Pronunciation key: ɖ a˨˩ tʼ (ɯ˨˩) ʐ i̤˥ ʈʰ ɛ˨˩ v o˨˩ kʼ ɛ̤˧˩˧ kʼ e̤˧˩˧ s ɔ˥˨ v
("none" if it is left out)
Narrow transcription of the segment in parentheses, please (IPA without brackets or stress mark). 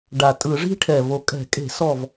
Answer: ɯ˧˩˧